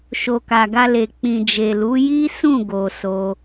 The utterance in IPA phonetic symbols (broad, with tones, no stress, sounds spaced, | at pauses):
ʃ o˨ k a˨ ɡ a˧ l e˨ k͡p ĩ˨ d͡ʒ e˨ l u˨˦ j i˦ s ũ˦˨ ɡ o˧ s o˦